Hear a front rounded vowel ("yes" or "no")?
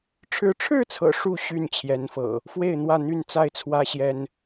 yes